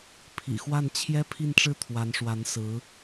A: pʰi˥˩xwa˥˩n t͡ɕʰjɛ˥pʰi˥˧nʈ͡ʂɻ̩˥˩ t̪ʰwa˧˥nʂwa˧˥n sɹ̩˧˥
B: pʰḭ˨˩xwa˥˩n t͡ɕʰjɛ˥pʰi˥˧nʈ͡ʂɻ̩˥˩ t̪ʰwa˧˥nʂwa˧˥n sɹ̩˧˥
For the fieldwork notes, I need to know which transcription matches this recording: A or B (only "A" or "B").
B